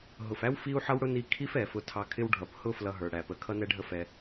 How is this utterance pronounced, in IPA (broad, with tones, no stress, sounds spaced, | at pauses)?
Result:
ɦ ʊ˩ f æ˥ w f i˥ u̯ ħ ʌ˥ w ɽ ʊ˥ n i˧ kʰ i˥ f ɛ˩ f ʊ˧ tʰ ɑ˧ kʰ ɪ˥ w ɖʱ ʌ˩ p h ʊ˥ f l ʌ˧ ɦ ə˞˩ ɽ æ˩ p ə˩ kʰ ʌ˥ n ɛ˥ ɖʱ ə˥ f ɛ˧